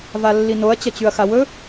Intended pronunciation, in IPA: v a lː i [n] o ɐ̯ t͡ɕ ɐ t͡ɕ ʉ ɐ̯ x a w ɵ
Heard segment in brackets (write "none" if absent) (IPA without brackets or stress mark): n